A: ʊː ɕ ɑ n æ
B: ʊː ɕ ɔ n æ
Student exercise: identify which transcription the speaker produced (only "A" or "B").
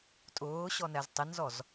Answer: B